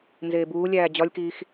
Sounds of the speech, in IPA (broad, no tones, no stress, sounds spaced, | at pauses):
n z eː b uː lʲ æː d͡ʑ ɒ lʲ k iː x